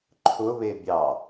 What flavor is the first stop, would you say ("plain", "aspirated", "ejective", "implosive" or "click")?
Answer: click